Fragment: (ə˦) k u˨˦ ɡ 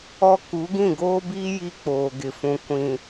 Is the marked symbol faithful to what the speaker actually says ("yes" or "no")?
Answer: no